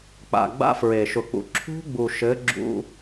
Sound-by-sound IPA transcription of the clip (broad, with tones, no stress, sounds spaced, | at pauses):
k͡p a̰˨ ɡ͡b a̰˦ f ɹ e˨ ʃ ʊ˨ k͡p ṵ˨ ǁʰ ṳ˦ ɡ͡b u˨ ʃ ɘ˨˦ ɡ͡ǁ ṵ˦